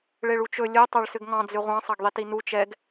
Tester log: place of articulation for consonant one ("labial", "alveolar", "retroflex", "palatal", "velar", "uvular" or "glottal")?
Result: retroflex